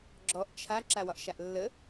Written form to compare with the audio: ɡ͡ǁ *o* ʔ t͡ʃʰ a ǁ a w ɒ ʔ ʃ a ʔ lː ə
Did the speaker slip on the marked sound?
yes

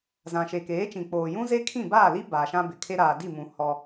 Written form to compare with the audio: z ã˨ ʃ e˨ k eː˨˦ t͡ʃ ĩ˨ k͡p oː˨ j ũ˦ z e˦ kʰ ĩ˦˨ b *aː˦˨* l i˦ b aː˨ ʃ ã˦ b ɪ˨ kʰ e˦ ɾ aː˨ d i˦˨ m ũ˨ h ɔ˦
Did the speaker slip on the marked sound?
no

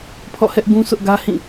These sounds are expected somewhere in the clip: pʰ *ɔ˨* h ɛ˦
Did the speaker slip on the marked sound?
yes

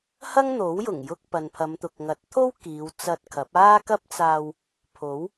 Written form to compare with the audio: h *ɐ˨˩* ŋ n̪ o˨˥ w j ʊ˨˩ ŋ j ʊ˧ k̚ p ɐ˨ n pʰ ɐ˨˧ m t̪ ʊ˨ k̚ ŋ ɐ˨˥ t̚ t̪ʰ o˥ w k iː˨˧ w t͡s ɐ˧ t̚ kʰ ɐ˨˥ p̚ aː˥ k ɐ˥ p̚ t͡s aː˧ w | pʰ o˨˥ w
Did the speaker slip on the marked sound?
yes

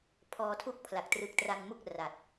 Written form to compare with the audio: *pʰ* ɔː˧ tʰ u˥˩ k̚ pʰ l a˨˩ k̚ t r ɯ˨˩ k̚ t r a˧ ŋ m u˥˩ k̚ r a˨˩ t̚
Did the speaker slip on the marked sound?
no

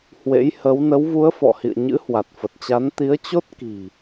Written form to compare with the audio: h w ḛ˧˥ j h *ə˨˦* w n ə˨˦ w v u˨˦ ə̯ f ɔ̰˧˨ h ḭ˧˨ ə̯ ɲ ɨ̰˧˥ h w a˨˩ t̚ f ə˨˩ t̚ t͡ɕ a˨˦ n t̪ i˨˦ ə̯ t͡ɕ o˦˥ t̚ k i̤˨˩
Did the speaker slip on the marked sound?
no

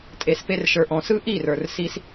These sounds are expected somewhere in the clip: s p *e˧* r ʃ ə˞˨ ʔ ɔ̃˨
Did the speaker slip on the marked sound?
no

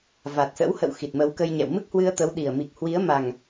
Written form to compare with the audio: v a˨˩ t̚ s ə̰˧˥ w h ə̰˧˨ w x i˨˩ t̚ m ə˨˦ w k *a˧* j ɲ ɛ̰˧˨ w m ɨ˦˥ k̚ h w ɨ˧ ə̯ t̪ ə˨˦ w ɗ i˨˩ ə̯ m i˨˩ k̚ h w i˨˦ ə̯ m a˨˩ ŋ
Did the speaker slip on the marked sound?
yes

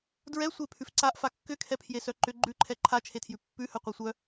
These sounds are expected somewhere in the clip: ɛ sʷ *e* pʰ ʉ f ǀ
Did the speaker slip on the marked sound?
no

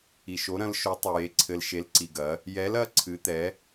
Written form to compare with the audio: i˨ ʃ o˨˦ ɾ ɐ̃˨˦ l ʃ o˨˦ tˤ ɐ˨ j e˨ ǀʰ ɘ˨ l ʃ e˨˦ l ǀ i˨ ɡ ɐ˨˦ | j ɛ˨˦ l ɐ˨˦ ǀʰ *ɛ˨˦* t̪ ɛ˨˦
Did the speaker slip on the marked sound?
yes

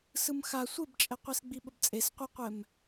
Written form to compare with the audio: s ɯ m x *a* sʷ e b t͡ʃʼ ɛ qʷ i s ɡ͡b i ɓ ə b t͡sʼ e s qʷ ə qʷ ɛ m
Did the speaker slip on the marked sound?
no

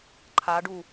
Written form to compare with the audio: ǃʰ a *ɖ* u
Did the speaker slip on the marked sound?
no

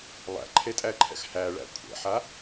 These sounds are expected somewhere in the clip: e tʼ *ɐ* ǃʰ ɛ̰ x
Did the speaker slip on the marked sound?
yes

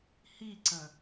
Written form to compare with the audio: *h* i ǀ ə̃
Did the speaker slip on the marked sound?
no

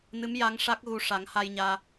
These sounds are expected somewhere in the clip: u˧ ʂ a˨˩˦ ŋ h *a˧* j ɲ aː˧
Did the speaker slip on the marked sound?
no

